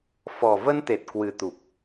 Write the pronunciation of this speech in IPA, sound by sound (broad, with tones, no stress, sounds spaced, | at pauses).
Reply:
f ɔ˨˩ v ə˧ n t̪ e˨˩ t̚ k w ɨ˨˩ t̪ u˨˩ p̚